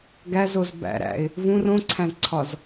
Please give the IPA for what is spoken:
ɡæzoz bæ̰ɾæ̰ɪ̯ | vũr õǀʰæ̃zǀʰɒz

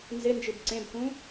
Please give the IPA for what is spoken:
nzɪnd͡ʒɨb ǀẽbkũ

